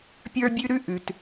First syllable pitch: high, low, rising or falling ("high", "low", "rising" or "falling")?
high